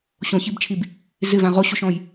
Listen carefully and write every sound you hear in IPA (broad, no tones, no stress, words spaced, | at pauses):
ɕõçibt͡ʃʰib | zɪvã ʁoɕoʃɔ̃j